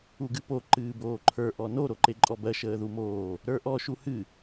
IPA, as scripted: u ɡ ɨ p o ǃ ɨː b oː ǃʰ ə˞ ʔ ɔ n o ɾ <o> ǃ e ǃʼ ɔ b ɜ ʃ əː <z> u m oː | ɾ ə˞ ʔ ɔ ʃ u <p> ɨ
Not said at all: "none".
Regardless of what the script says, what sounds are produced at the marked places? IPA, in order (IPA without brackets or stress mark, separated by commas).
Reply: o, ð, h